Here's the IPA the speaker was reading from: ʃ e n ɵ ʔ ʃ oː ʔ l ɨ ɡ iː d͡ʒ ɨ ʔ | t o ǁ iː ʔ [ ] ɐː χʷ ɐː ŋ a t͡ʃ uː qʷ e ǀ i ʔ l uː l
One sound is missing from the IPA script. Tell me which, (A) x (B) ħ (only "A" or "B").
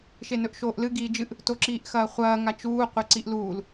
A